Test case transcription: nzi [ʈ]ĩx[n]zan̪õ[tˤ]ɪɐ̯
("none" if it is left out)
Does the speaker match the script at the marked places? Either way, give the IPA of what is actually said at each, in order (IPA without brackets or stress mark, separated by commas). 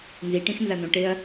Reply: ʈ, n, ʈ